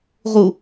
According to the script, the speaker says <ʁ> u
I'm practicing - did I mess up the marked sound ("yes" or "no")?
no